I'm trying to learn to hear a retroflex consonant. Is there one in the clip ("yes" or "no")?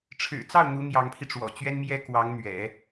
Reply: yes